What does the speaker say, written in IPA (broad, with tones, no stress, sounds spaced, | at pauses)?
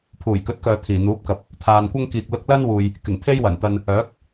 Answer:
pʰ uː˨˩ j k ɵ˨˥ t̚ k œː˨ t̪ʰ iː˨˩ n̪ uː˨˥ p̚ k ɐ˨ p̚ | t̪ʰ aː˨ n kʷ ɐ˥ ŋ k iː˨ k̚ l ʊ˧ k̚ l ɐ˥ n w uː˨ j | k ɪ˨˩ ŋ t̪ʰ e˥ j w ɐ˨˩ n t̪ ɐ˧ n | œː˨˥ k̚